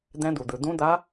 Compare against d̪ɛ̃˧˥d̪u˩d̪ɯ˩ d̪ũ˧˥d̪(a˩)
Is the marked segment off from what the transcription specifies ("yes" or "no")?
yes